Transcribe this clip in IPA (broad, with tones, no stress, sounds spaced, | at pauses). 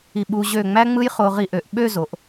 i˧˩ ɓ u˧ ʑ ø˧˩ ŋ͡m æ˥ ŋ͡m ɯ˥ j χ o˧ ʁ i˧ ʔ ø˩˧ ʔ ɓ ø˥˧ z o˩˧ ʔ